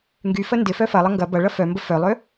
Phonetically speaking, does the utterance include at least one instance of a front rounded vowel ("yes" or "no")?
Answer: yes